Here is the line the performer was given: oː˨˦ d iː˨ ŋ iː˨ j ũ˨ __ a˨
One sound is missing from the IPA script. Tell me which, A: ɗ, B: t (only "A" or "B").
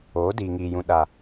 A